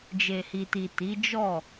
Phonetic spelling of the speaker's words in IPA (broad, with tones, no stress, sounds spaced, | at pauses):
d͡ʒ e˨ h i˨ t i˨ t i˨˦ d͡ʒ ɔ˦˨